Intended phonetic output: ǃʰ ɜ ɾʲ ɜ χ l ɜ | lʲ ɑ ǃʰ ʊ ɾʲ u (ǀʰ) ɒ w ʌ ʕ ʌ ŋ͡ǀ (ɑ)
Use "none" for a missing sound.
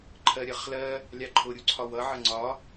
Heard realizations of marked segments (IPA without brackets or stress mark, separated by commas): ǀʰ, ɒ